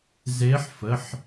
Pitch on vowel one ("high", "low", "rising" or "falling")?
rising